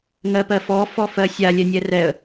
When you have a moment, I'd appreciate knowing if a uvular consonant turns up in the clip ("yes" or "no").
no